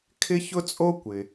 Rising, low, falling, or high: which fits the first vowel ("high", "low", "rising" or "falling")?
high